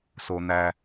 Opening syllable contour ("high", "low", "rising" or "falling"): low